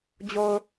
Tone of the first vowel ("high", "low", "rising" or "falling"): low